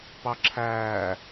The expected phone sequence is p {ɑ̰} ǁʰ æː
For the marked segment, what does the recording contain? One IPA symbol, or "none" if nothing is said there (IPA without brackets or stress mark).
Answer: ɑ